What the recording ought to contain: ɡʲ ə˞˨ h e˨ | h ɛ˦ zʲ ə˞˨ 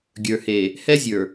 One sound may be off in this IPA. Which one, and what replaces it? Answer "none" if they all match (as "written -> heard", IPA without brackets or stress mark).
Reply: none